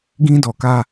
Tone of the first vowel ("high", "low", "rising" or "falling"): high